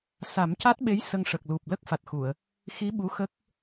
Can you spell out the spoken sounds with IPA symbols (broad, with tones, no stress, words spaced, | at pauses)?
sa˨˩˦mca˦˥t̚ɓe˧˥j sə˧ŋʂə˨˩k̚lu˨˩p̚ lə˦˥k̚ fa˨˩t̚xu˨˩˨ə̯ | xi˧˥ ɓu˧˥xə˦˥k̚